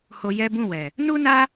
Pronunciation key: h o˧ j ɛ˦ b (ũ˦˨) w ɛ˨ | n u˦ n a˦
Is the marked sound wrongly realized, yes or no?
no